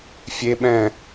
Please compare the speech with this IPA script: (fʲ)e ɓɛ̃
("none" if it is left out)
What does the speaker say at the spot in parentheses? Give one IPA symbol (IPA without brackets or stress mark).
fʲ